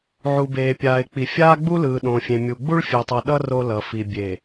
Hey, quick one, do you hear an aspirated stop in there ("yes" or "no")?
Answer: no